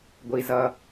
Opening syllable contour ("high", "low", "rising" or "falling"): low